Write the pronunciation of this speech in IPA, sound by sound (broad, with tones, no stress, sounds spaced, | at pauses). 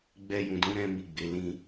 ɡ͡b ɛ˦ j ũ˧ d ũ˦ ɾ ɛ̃˦ m i˦˨ ɡ͡b e˨˦ l ĩ˦